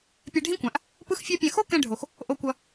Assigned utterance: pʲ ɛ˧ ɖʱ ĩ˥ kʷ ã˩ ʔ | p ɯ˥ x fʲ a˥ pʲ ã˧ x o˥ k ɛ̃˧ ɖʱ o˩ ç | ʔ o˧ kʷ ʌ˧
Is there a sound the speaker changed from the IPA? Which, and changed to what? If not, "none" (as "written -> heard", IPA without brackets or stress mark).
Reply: ç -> x